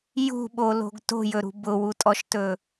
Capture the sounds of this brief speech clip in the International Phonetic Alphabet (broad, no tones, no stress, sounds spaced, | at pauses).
j ṳ ɓ o l o̤ ɡ t o̤ j ɵ ɾ ṳ b ʊ w u tʼ ɔ ʃ t ɵ